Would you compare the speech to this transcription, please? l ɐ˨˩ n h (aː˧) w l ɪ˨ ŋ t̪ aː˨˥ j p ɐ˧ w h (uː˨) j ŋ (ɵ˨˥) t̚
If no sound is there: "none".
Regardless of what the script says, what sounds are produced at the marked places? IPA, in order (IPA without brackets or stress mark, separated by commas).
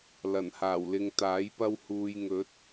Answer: aː˨˩, uː˨, ɵ˨˥